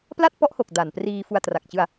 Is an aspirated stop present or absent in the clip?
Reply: absent